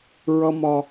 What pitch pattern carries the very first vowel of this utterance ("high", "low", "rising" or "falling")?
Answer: high